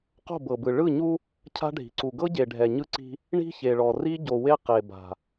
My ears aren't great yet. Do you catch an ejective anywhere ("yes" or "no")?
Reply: no